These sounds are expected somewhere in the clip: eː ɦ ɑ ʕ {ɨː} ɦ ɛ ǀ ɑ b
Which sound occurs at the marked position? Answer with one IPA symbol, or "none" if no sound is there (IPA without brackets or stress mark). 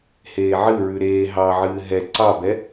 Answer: ɨː